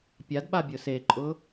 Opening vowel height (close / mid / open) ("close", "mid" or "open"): open